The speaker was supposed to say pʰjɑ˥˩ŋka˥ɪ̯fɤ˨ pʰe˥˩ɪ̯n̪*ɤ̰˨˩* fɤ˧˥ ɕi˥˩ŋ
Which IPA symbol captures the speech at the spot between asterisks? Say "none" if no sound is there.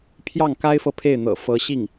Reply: ɤ̰˨˩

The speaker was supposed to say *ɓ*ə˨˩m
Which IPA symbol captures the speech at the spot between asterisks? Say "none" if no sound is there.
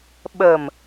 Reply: ɓ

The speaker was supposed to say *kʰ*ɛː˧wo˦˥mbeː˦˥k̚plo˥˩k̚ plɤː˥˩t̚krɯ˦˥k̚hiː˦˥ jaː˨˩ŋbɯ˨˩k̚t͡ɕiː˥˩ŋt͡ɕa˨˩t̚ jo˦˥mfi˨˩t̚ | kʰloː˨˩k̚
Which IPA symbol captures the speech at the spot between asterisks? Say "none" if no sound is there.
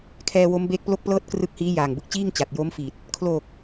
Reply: kʰ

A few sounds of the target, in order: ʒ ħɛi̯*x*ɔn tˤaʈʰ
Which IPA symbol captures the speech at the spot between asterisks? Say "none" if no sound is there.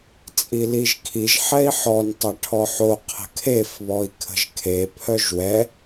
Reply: ħ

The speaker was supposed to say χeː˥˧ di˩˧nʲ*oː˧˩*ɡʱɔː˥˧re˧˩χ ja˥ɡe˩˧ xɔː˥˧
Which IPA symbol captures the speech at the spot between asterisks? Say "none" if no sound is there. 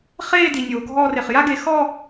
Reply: oː˩˧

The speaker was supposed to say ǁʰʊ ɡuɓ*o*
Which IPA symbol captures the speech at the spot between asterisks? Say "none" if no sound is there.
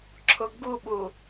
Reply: u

